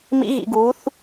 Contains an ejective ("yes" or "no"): no